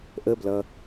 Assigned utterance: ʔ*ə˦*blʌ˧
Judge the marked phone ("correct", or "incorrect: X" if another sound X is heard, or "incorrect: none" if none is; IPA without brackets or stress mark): correct